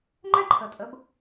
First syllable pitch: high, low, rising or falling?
high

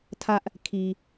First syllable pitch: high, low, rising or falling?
high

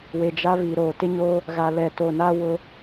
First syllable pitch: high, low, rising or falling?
low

